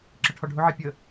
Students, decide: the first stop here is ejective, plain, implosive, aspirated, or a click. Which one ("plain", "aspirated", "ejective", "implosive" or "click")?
click